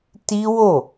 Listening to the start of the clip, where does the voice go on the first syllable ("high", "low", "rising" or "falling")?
high